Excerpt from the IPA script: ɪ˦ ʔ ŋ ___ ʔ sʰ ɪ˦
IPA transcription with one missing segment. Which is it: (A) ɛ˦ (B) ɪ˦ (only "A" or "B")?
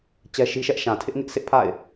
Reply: B